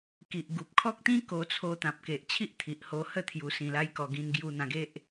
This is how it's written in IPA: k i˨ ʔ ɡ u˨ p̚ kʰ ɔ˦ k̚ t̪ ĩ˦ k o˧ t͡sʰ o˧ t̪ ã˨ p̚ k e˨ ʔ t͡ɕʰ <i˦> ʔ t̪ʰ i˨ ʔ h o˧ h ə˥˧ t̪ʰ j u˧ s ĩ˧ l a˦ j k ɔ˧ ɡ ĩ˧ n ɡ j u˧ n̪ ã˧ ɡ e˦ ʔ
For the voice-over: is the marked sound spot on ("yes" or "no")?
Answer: yes